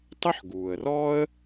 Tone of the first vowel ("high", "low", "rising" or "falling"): high